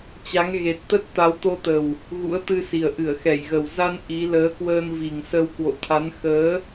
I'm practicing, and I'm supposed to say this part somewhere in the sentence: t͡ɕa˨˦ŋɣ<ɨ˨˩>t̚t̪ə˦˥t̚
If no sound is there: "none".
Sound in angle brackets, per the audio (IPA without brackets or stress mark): e˨˩